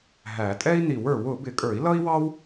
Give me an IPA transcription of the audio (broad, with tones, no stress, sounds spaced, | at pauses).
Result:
ɦ æ˨˩˦ tʼ ɛ˥ i̯ n i˨˩˦ w ə˞˨˩˦ w ʊ˨˩˦ b ɪ˨˩˦ kʼ ə˞˨˩˦ i̯ l ʌ˥ i̯ w ɑ˥ w